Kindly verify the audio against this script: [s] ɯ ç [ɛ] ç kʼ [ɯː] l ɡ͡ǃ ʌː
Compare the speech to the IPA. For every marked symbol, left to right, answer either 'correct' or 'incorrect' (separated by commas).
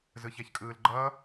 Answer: incorrect, correct, correct